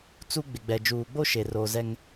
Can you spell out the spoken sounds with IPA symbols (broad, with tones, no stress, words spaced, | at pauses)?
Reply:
t͡su˦ ɡ͡bɪ˨ɡ͡bɛ˨ d͡ʒuː˨ɡ͡bo˦ ʃe˨roː˨zɛ˦ŋ